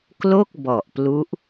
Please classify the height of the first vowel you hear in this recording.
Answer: mid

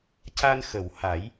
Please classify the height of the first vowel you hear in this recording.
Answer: low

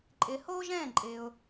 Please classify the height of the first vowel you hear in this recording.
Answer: high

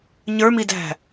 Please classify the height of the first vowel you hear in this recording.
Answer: mid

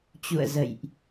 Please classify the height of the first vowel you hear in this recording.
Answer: high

